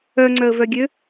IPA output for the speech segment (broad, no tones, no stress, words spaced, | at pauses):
œŋ͡ǀœə̯vœɡʲø